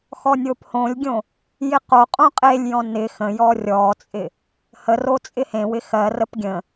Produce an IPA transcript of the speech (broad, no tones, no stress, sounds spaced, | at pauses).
x ɔ nʲ o p h õ lʲ ɡʲ õ | j ɪ q o qʼ õ qʼ e lʲ j ɔ̃ n ɪ x ə̃ j ɔ rʲ ɔ t͡sʼ ɪ | h ə r o t͡sʼ ɪ h ẽ w ɪ x ɜ r ə p ɡʲ ə̃